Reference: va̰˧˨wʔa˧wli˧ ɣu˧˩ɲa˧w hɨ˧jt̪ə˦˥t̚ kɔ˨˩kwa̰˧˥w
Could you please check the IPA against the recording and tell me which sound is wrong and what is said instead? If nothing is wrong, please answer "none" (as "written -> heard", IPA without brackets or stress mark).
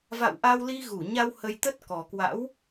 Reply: ɨ˧ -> ə˧